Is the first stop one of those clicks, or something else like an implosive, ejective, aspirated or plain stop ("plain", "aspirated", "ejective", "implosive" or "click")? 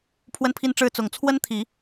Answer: aspirated